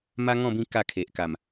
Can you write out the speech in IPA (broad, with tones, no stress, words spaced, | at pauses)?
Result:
ma˦ŋɔ̃˥˧bĩ˥˧ ka˥˧kʰe˨ʔka˨˩m